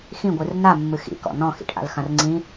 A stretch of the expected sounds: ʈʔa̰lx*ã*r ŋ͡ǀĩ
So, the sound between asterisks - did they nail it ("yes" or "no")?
yes